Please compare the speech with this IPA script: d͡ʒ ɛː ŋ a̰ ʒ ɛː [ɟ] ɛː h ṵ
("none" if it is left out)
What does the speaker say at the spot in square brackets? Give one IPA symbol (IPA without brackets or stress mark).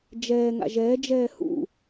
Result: d͡ʒ